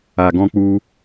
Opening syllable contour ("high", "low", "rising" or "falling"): low